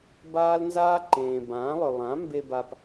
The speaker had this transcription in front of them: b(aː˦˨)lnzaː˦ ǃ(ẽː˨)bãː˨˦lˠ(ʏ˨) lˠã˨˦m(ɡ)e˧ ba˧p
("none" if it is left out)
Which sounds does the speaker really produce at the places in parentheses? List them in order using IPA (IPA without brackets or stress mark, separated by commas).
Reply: aː˦, ẽː˨, ʏ˨, b